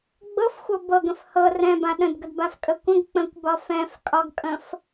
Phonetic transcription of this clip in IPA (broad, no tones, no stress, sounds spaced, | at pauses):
ɡ͡b ɤ f xʷ ɤ b ɤ ɡ ə̃ f h ɤ r ɛ̃ b ã ɗ ə̃ d ɡ ə d b a f kʼ ə kʷ ə̃ ɡ k͡p ə̃ kʷ b ɒ f ɛ̃ f kʼ ɒ ɡ kʼ ə̃ f